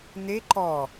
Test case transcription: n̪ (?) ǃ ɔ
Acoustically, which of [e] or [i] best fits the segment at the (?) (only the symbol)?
e